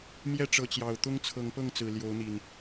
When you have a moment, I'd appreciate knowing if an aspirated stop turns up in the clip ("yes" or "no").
yes